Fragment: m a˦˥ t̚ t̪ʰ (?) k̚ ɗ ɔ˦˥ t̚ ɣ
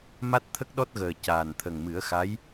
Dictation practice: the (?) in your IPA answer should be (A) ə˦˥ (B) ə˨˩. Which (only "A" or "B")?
A